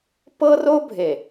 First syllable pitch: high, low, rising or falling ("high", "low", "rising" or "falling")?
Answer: high